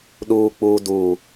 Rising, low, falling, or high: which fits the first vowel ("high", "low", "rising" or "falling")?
low